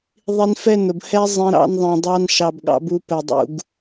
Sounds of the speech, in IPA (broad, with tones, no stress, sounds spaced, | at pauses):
ðˤ i˧ n f ɛ˦˨ n ʊ˨ b h ɛ˧ zˤ ɛ̃˧ ɾ ɑ̰˧ n ðˤ ɛ̃˨ dˤ ɑ˧ n ʃ ɑ˨ b ɠ ɑ̰˧ b u˧ p ɛ˨ dˤ ṵ˨ ɡ